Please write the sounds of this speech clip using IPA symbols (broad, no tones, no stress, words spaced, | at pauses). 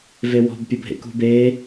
vewɔ̤b pʲɤbʱḛkṳbe